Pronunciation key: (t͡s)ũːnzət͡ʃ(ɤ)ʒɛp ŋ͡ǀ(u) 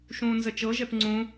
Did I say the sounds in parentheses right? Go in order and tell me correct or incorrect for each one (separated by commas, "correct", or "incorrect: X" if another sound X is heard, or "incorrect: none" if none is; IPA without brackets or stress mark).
incorrect: ʃ, correct, incorrect: ũ